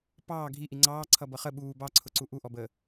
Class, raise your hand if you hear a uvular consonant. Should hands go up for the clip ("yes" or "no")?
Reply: yes